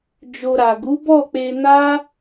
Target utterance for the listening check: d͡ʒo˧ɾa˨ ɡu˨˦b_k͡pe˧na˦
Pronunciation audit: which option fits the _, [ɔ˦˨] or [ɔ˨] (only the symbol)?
ɔ˦˨